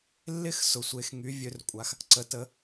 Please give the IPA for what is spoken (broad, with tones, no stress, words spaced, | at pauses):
lːɪ˥˨x sʊ˩sʷe˩˧xŋy˩˧ vʲø˩˧rkʷʼa˩x | ǀə˩˧tə˩˧